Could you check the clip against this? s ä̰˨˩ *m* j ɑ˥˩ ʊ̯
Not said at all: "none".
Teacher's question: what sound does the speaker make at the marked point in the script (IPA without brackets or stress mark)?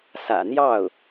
n̪